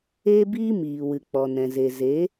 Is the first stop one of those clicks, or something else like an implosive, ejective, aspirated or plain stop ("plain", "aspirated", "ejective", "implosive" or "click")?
plain